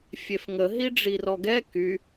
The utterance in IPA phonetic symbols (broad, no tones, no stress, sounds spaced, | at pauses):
fʲ e f ŋ ə ɦ i ɖ͡ʐ i r ɔ ɡ ɛ k y